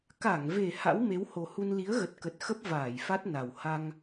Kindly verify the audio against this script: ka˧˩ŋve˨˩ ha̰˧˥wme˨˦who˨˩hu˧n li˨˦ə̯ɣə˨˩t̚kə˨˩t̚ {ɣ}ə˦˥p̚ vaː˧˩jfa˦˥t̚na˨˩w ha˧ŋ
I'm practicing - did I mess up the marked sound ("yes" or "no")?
yes